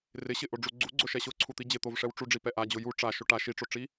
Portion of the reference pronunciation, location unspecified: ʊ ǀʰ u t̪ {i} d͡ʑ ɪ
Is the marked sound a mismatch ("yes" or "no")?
no